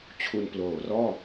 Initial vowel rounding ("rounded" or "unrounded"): rounded